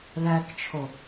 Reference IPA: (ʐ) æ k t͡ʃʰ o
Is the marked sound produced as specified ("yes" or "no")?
no